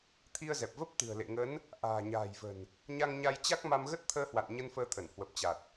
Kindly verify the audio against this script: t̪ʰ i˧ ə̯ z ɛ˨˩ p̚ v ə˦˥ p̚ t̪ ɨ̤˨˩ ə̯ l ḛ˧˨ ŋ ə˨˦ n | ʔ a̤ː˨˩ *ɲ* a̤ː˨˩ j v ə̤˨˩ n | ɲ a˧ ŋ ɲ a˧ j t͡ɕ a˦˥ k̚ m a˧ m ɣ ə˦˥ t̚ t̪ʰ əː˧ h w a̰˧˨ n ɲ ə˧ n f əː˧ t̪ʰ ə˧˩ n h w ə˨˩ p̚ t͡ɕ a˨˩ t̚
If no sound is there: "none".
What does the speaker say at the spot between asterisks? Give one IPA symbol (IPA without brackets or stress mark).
ɲ